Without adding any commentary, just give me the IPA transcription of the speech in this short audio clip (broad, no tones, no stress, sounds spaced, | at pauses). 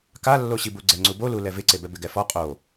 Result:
k a lː o ɕ i b u ɡ͡ǀ ɛ ŋ͡ǀ u b o l u l ɛ v ɪ ǀ e b ɛ b ɪ ɡ ɛ f ɔ qʼ o